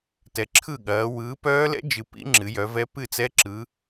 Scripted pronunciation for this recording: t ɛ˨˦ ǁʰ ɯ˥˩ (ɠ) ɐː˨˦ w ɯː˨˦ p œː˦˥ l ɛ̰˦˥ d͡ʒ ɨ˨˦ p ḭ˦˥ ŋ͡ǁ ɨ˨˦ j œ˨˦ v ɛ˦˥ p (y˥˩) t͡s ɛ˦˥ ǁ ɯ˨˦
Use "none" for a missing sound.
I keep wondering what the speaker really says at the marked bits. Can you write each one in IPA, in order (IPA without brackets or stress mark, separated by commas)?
ɠ, ɨ˥˩